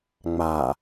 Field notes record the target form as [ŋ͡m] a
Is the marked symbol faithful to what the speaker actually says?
yes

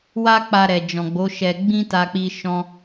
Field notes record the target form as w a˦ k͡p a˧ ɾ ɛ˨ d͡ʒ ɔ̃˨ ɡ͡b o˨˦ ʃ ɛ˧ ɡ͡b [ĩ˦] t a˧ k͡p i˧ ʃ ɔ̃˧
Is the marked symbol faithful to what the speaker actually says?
yes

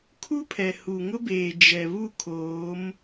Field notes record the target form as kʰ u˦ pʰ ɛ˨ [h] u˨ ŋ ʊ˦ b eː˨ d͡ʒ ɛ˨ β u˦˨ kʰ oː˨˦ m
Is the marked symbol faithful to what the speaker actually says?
yes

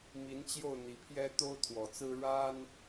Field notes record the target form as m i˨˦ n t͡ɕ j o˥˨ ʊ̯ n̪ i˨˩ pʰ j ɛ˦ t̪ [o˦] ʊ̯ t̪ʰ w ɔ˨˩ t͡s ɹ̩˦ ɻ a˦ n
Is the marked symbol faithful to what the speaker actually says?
yes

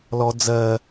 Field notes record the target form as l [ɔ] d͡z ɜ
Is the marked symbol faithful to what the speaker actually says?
yes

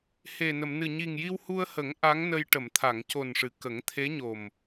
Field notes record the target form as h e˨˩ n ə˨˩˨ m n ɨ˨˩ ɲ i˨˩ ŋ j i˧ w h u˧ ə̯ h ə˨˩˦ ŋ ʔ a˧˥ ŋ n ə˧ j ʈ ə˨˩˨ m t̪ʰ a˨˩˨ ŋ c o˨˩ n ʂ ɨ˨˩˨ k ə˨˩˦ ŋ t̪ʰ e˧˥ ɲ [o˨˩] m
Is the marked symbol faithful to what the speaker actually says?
yes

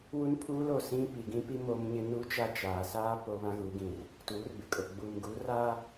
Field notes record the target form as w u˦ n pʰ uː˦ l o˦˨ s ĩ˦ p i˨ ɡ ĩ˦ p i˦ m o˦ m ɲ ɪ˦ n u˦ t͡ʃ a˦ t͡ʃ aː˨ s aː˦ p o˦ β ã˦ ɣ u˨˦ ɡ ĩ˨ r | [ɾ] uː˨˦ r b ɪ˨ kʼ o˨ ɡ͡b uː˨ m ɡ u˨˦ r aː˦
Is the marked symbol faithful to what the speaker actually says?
no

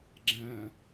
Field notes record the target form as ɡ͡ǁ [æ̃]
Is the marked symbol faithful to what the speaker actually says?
yes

